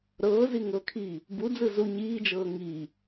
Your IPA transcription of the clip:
ɾ ɤː z i ŋ ɤ kʰ iː | b u d͡z ɯ z u ɲ iː d͡ʒ ɤː ŋ iː

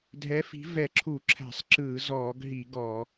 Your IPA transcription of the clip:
dʱ ɛ˨˥ f i̤˨˥ v ɛ˧˩˧ ǁʰ u˧˩˧ ǁʰ æ̤˧˩˧ sˤ ǁ ɯː˧˩˧ z ɔː˧˩˧ ɡ ɦ i˧˩˧ ɡ ɔː˧˩˧

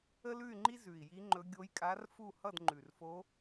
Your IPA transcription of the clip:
ə˥ l ʉ˥˧ y̯ ŋ͡ǃ i˥ z ʉ˨˩ i̯ j i˧˥ ŋ͡ǃ ɵ˧˥ ɡʲ o˧˥ j kʼ a˧˥ r f u˥˧ h ʌ˥˧ d ŋ͡ǃ ʉ˨˩ r f o˧˥

